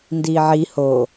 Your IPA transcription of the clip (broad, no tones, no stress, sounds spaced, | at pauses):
n d iː ʕ i h o